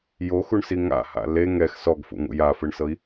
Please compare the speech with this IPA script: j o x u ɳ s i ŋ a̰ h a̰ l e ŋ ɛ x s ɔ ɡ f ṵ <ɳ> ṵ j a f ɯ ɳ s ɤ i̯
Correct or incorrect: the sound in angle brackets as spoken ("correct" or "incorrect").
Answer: incorrect